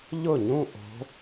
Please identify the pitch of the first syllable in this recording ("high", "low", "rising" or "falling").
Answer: falling